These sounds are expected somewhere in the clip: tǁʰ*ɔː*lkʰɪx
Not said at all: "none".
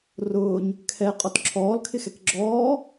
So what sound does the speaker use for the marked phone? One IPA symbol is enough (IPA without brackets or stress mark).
ɔː